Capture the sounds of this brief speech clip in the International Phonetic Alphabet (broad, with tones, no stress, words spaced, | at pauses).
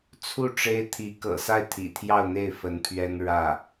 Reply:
t͡sʰu˥˩ ʈ͡ʂe˥ɪ̯ t̪ʰi˧˥kɤ̰˨˩ sa˥˩ɪ̯t̪ʰḭ˨˩t̪ʰjɑ˥˧ʊ̯n̪e˥˩ɪ̯ fə˧˥npʰɥɛ˥n ɻä˥˩